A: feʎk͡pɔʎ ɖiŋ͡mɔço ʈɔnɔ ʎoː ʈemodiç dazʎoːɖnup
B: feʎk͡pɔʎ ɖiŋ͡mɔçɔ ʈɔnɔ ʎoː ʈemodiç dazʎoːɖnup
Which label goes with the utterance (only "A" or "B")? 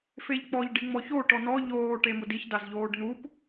A